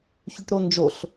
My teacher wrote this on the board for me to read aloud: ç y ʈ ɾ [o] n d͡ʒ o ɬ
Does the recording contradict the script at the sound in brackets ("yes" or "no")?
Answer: no